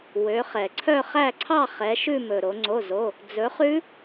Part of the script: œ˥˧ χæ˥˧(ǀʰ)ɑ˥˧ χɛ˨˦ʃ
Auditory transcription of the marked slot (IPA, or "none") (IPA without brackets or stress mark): ǀʰ